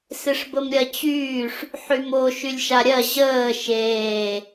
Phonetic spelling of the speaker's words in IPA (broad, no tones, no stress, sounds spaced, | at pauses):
s ɪ ʂ b ə m ɾʲ ɜ t͡ɕ yː ʂ | ħ y m o ʃ y lʲ ʃ a ɾʲ ɜ ʑ əː ʃ eː